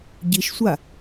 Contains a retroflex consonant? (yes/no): no